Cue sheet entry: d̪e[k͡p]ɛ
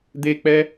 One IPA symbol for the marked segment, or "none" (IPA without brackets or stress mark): k͡p